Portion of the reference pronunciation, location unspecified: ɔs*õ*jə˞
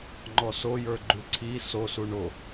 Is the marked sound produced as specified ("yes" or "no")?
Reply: no